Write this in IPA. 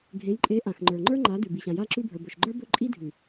ɡʱ ẽ˨˦ j ǃʼ e˨˦ ʔ ã˨ x ŋ͡ǃ ə˞˨ ŋ͡ǃ ə˞˦ ŋ͡ǃ a˨˦ d ʉ˨ b i˨ ɕ ã˨ j a˦ ǁ ʉ˦ bʱ ə˞˨ b ɵ˨ ʃ ɡ͡ǃ ə˞˦ b ɵ˦ ǃʼ i˦ dʱ ʉ˨

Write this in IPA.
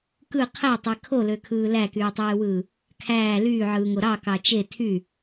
k ɯ qʰ æ tˤ e kʰ o l ø kʰ ɯː l æ k yː tˤ eː w ɯː | kʰ æː l yː ʕ ɯː ŋ o ɾ ɑ k ɑ t͡ʃ e tʰ y

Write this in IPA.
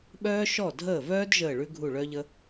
ɓ œː˥ ʃ ɔ˥˩ dʱ əː˥˩ v œː˥ d ʒ əː˥˩ ɭ ʉ˥ ɡʱ u˥˩ ɭ œ˥ ʎ ə˥

